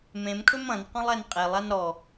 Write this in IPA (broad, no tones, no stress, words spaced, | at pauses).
mẽmkʰɵm ɐ̃n qɔ̃lˠɛnqʼelˠan ɾɔ